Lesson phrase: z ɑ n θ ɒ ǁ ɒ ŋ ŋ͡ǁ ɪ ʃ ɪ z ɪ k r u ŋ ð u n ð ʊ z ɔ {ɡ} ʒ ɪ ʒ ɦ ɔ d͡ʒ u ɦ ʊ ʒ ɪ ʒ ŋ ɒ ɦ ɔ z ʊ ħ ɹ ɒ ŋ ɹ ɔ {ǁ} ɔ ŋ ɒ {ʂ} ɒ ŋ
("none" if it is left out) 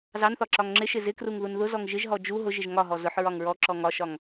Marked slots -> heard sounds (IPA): ŋ, ǁ, ʃ

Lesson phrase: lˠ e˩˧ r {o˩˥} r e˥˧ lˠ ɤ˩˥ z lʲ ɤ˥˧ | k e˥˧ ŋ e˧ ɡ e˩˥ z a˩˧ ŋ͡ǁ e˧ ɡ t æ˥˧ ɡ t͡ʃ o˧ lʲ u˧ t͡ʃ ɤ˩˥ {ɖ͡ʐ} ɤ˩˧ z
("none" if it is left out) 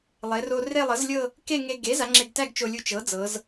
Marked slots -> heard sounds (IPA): o˧, d͡z

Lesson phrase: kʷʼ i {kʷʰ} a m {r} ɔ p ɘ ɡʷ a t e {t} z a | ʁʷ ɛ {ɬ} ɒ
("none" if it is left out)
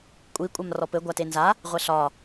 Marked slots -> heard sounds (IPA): kʷʼ, r, n, ɬ

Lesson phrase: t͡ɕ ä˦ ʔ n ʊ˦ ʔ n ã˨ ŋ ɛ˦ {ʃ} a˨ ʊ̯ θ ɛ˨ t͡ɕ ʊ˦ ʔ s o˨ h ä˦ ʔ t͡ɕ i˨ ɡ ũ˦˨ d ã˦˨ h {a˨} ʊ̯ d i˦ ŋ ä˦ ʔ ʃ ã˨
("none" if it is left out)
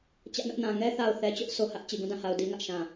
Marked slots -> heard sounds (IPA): θ, a˨

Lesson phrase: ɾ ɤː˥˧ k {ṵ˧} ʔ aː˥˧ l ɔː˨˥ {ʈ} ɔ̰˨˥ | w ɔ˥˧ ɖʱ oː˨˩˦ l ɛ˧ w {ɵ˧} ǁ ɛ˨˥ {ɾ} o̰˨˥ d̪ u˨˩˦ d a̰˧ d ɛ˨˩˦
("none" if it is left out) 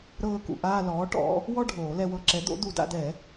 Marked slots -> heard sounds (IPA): ṵ˧, ʈ, ɤ˧, d̪

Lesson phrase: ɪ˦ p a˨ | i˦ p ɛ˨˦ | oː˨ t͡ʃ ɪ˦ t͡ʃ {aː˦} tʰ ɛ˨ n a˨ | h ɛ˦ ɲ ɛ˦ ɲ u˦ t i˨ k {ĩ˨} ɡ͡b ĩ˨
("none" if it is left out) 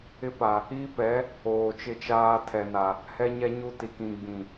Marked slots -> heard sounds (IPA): aː˦, ĩ˨

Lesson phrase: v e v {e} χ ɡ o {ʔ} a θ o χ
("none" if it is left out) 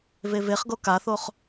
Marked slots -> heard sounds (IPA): e, k

